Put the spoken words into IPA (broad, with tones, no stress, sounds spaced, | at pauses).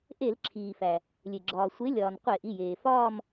ʔ e˧˩˧ l ǁʰ iː˩ f æ˩ | lʲ e˩ ɡ͡ǁ ɒː˩ sʷ e˨˥ lʲ ɒː˩ n qʷ e˧˩˧ ʔ i˩˧˩ j eː˩ f ɒː˥˧ m